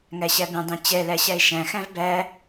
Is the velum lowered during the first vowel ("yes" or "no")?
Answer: no